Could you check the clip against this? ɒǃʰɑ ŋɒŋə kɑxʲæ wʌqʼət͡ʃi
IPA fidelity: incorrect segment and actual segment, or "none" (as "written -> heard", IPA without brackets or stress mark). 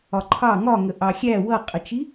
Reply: k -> ʔ